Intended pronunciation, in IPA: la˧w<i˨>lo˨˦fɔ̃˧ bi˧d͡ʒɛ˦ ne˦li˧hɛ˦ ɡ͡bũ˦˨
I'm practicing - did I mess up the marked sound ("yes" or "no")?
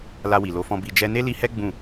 no